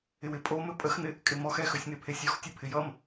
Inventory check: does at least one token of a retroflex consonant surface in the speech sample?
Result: no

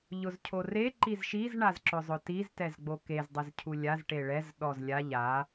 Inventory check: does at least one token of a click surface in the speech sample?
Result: yes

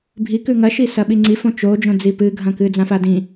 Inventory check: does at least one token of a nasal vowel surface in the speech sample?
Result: yes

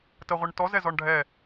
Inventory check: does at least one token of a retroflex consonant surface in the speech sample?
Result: yes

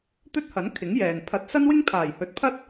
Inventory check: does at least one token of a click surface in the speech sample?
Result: no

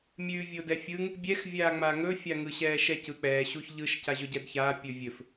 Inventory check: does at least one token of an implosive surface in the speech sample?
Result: no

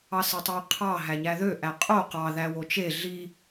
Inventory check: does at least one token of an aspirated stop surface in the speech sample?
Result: yes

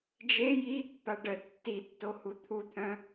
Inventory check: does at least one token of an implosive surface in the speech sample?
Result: no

